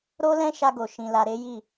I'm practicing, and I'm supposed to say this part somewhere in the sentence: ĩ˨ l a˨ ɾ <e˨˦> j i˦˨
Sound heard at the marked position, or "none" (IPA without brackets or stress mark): e˨˦